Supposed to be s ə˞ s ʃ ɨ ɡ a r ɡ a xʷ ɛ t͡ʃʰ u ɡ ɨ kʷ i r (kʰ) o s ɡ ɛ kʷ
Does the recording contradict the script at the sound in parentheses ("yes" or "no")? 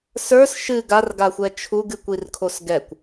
no